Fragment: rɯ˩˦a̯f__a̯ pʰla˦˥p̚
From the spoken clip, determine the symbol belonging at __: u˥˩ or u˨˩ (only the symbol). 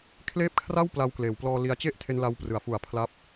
u˨˩